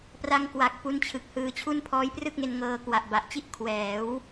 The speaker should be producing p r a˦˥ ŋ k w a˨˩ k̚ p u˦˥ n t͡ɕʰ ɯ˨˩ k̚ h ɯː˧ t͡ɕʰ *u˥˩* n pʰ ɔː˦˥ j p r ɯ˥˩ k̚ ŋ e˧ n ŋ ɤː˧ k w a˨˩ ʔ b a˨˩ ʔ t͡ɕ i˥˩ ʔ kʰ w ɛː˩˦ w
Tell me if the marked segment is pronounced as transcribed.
yes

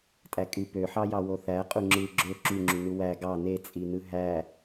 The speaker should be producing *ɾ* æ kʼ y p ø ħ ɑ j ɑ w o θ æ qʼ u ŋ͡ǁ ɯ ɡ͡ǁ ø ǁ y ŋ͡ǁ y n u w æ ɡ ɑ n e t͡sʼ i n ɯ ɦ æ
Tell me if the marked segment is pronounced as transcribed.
no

